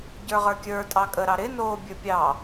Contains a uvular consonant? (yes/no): yes